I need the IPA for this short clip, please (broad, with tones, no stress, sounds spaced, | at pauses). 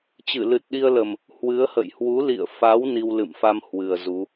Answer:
t͡ɕ ɨ˧˩ l ɨ˨˩ t̚ ɗ i˧ ə̯ l ə˨˩ m | h w ɨ˨˦ ə̯ h ə̰˧˨ j h w u˨˦ l ḭ˧˨ ə̯ f a˨˦ w n i˧ w l ɨ̰˧˨ m f a˧ m h w ɨ˨˩ ə̯ z u˨˦